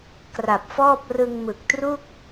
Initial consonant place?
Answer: velar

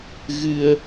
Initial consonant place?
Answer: velar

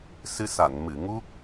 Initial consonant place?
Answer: alveolar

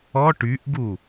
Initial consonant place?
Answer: retroflex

